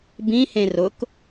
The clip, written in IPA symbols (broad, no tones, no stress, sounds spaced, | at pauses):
b ĩ h ẽ r ʊ k